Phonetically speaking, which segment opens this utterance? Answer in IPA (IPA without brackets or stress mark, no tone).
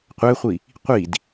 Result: qʷ